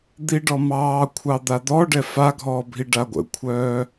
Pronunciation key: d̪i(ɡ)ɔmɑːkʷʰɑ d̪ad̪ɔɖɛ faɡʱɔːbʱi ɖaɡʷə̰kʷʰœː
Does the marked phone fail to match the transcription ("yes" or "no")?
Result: yes